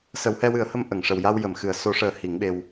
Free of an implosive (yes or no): no